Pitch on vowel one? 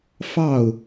falling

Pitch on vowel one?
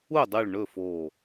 falling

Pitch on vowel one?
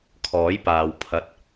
rising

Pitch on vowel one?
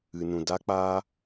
low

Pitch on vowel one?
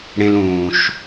high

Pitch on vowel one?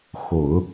low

